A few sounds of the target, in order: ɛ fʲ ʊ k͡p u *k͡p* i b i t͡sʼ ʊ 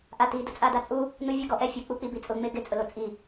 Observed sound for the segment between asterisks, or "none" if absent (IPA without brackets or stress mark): k͡p